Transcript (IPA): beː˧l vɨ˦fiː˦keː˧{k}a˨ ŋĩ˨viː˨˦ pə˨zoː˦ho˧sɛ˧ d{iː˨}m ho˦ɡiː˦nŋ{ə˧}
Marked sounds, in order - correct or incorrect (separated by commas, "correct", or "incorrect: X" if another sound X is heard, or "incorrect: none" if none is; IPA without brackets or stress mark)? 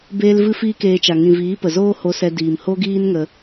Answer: incorrect: t͡ʃ, correct, correct